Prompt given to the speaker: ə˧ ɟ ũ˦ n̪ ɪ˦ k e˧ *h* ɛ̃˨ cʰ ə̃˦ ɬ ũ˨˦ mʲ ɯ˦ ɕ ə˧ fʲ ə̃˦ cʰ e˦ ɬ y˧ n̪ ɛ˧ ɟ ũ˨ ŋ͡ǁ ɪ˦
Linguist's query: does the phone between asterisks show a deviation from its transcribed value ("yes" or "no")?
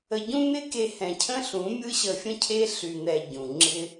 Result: no